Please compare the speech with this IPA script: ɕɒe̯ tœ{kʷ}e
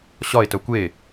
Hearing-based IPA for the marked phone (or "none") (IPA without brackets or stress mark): kʷ